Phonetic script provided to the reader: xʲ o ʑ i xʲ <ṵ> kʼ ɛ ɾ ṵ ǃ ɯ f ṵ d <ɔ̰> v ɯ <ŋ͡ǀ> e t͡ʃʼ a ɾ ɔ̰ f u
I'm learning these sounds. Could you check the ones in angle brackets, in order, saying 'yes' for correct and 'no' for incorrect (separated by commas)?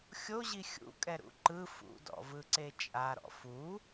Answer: yes, yes, no